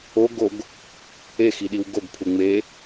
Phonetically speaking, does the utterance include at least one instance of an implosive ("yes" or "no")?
yes